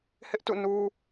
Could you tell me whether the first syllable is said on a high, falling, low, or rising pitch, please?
high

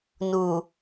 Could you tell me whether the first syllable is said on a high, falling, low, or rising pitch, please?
low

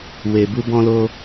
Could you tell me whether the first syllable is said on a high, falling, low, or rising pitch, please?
low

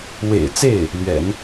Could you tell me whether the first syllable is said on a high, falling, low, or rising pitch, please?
low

